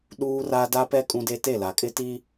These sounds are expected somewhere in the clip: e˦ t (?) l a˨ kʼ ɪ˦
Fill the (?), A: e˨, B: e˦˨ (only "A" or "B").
B